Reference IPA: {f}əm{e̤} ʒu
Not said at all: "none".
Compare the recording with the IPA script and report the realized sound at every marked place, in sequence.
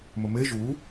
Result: m, e

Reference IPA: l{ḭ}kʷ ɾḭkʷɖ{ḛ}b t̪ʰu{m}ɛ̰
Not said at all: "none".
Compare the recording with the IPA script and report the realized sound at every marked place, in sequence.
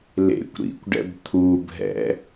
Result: ḛ, ɛ̰, bʱ

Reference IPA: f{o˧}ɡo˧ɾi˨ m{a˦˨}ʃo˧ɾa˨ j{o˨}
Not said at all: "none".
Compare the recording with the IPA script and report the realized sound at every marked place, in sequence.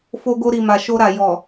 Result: o˧, a˨, ɔ˨

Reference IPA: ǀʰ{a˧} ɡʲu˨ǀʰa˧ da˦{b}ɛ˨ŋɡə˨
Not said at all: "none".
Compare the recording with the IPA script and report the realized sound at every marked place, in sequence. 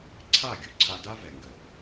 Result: a˦˨, v

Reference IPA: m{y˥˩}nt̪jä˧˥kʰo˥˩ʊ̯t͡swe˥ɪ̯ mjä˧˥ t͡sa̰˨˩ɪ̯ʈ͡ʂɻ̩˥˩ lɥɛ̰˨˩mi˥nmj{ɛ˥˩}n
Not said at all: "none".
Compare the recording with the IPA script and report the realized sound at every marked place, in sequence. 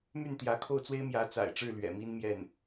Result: y˥˩, ɛ˥˩

